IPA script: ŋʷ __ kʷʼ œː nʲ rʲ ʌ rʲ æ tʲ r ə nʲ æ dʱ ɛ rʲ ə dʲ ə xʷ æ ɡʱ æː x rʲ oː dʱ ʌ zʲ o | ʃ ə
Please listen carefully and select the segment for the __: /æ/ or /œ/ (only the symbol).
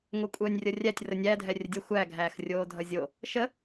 œ